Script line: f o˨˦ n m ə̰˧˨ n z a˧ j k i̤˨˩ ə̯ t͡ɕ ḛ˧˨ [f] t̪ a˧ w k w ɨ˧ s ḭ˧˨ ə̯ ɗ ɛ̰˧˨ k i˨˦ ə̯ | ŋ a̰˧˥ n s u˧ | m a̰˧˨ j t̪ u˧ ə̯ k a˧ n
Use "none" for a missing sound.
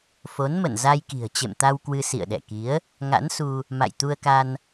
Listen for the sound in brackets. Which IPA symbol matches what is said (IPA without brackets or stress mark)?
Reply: m